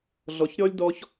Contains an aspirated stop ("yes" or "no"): no